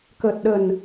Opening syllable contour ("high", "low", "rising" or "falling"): low